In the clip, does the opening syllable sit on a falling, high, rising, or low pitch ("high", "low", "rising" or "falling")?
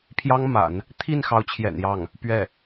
high